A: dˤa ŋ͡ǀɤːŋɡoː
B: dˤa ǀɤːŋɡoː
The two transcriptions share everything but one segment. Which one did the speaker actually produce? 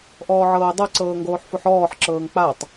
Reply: B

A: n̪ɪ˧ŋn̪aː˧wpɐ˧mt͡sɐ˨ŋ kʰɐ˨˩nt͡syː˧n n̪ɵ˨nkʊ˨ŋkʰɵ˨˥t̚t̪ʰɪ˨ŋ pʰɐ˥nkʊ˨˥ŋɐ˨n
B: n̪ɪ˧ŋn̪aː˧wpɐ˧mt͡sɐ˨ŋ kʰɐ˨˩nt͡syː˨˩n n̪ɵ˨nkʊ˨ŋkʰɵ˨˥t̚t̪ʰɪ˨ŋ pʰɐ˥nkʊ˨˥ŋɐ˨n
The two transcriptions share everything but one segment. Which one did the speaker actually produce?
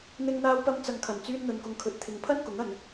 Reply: A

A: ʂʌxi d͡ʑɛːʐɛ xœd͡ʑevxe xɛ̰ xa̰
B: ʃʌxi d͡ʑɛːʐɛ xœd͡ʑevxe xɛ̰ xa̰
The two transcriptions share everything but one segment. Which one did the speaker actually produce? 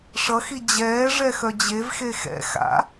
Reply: A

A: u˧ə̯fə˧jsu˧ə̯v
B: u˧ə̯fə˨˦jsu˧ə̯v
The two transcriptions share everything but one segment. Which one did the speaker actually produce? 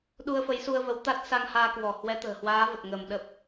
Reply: B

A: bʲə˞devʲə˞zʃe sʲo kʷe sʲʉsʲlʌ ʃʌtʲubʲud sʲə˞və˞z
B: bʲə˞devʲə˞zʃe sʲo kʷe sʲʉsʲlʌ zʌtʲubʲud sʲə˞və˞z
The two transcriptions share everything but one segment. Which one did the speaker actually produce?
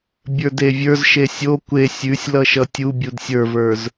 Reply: A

